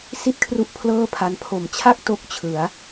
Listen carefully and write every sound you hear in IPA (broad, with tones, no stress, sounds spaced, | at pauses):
s i˥˩ t̚ kʰ r u˦˥ ʔ pʰ l ɤː˥˩ pʰ a˧ n pʰ o˨˩ m t͡ɕʰ a˥˩ k̚ t o˦˥ k̚ t͡ɕʰ ɯ˩˦ a̯